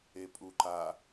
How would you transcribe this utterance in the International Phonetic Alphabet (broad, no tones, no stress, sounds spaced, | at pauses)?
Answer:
e pʼ u ǃ a